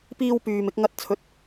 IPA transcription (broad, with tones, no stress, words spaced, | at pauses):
piː˧wpyː˨m ɪ˧k̚ŋɐ˧t̚t͡sʰɵ˨˥t̚